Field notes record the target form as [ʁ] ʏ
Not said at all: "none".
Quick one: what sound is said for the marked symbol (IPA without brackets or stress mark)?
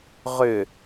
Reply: ʁ